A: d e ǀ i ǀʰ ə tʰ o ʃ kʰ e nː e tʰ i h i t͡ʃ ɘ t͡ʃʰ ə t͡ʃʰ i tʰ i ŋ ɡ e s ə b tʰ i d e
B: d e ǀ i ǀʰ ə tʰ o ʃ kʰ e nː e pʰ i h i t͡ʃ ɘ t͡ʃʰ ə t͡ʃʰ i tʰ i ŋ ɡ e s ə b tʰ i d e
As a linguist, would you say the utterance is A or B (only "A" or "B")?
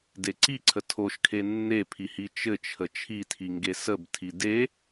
B